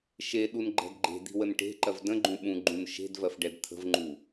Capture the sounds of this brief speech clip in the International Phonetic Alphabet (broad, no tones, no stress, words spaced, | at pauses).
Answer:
ʃe ɗunɡ͡ǃɛ̤dɡ͡ǃe̤d̪i̤ wənʈe̤ǃɜv də̃ɡ͡ǃũ ɓũɡ͡ǃũn ʃe̤d vɜfɖɛdt̪ʰə̤vŋ͡ǃu